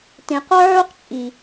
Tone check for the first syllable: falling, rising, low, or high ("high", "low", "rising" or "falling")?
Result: low